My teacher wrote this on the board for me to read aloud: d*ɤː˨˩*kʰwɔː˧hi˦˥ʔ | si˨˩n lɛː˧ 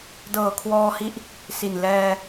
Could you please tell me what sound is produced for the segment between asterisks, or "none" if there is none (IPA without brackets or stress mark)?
ɤː˨˩